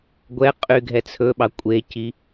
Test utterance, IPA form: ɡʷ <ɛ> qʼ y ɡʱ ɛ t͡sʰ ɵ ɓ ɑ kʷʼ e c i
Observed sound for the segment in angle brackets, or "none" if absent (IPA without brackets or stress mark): ɛ